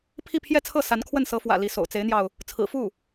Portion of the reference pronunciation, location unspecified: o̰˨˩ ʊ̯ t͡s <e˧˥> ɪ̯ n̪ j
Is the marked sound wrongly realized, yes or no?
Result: no